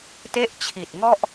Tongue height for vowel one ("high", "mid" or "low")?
mid